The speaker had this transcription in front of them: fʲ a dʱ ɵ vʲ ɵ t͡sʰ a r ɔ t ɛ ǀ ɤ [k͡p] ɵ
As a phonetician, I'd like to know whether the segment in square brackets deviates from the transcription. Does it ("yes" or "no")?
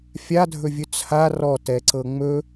yes